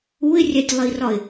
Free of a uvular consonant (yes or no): yes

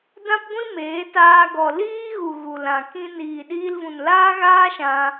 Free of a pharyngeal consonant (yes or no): yes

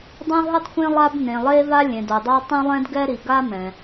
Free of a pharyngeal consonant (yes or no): yes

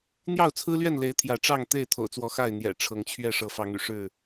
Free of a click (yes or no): yes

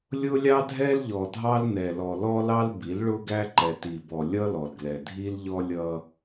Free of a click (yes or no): no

